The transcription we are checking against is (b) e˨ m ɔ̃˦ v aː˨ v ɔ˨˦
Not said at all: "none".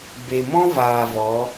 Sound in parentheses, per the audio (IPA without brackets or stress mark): b